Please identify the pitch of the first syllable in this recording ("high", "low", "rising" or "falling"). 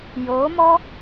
rising